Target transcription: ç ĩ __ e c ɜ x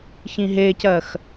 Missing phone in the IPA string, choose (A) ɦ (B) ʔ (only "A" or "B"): A